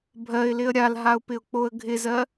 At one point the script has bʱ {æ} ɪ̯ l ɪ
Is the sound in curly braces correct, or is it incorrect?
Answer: incorrect